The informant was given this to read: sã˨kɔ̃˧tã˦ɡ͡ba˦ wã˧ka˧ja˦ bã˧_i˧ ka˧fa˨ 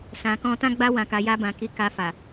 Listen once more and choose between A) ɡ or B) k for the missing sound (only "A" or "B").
B